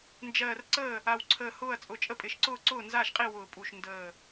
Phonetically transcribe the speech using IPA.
nd͡ʒɜː˧˩rǀəː˥˩ | a˧˩wǀʰəː˧˩hʊː˥˩ɐ̯t͡sʼʊ˧˩ t͡ʃʼə˥˩pʼɪ˧˩ʃǀʊː˥˩ ǀʊː˥˩nzaː˥˩ʃqʼi˥˩ wʊː˧˩pʼu˧˩ʃ ndəː˧˩

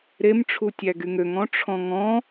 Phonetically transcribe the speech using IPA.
ɾemʈ͡ʂʰutʲæɡy ŋøŋɔ̃ʈ͡ʂʰɔ̃ ŋɔ̃

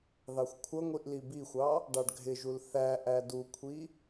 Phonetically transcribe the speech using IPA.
ðɑxʷkʷʰʌŋʷiʔ libixʷɑ | ɖɑɖɡʱɪʒul θæ ʔædukʷʰi

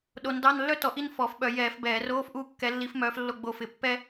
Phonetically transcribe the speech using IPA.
ɗo˨˦ndɑ˧˥˧nlːœ˥ tɔ˨˦ʔi˥n fɔ˧˩˧fɓœ˧˩˧ jɛː˧˩˧f bɛː˧˩˧roː˧˥˧fʔu˦˨ kːɛ˨˦lːi˨˦fmœː˨˦f lːo˦˨ɡ͡bo˦˨fɪ˧˩˧pːɛ˥

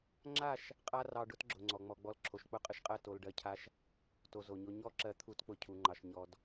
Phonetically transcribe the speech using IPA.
ŋ͡ǁa˦˨ʃ | qʼa˦rɑ˧ ɖʊ˦t ɡ͡ǁʊ˨ŋ͡ǀɔ˨ŋ͡mɔ˧ɡ͡bɔ˦l ǁʰo˨ʃk͡pʊ˦˨qʼə˦ʃqʼɜ˦˨ to˧lɖɜ˧cʰa˦ʃ | to˧zo˨ɲo˦ ɲɔ˦˨ǁɜ˧ t̪ʰu˦t k͡pʊ˦cʰu˧ŋ͡ǃɑ˧ʃɲɔ˦d

